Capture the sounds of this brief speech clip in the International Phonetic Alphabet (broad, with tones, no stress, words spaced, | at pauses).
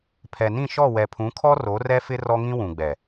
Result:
pʰɛ˨nĩ˦˨ʃɔ˦˨ wɛ˨pʰũ˨˦kʰɔ˦ ro˨˦rɛ˦fɪ˦ rɔ˦ŋĩ˦wũ˨ɡ͡bɛ˨